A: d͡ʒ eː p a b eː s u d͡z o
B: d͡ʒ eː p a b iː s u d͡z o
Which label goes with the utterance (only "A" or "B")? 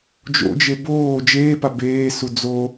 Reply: A